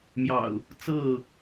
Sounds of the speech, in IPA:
mjɑ̰˨˩ʊ̯ | t͡sɤ˥˨

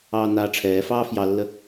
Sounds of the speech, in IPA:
ɑːnaːʈ͡ʂʰɛːfɑː fjɑlːə

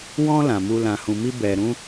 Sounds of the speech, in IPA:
wɔ̃˦ lã˧mu˦ lã˧hũ˧mi˦ bɛ˧ɾũ˦

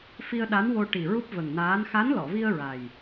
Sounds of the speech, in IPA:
fi˧ə̯ ɗa˧˥nwo˧ʈi˨˩ ɹu˦˥p̚və˨˩ŋnaː˧˥n xa˧˥nlɔ˨˩˨vi˧ə̯ ɹa˨˩j

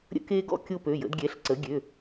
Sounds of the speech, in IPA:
ɾʲə̰˦ke˦ɡɔ̰˦ kʲo˦pø˩˧˩jə̰˩˥dɡʲɛ˩˧˩ɬ ǀə˩˥ɡʲø˩˧˩

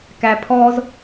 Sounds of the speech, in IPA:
kæpʰɔz

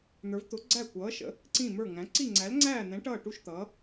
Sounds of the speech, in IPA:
n̪ə˞˧˥vt̪ʊ˧˥ ɡ͡ǀæ˥˧kʷʌː˧˥ʃə̰˧˥ | ǀĩ˥˧mə˞˥˧ŋæ̃˧˥ ǀi˥˧ŋ͡ǀæ˧˥lŋ͡ǀæː˥˧n̪ɛ̃˧˥ ʈʌː˥˧ʈu˥˧ʃt̪ʌː˧˥

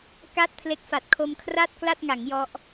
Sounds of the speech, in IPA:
ka˥˩t̚pʰle˦˥k̚fa˨˩t̚ kʰo˧mkʰra˥˩t̚kla˥˩t̚ŋa˩˦ŋ jɔ˦˥ʔ

